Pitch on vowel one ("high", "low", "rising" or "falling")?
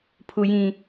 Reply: low